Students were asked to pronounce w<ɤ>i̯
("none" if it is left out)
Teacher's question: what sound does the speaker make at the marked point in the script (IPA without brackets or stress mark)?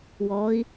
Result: ɔ